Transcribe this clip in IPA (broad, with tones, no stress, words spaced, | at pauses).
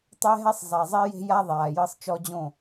tˤɛ˦ɦɛ˦sˤ zˤa˨zˤi˦je̤˦ja˦ ðˤaː˨jɤ˦sˤ t͡ʃɔ˦d͡ʑõ˦˨